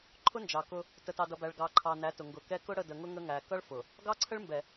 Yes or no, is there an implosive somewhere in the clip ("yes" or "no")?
no